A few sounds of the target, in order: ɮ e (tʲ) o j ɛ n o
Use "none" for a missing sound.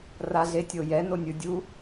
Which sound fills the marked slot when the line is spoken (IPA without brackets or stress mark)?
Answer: tʲ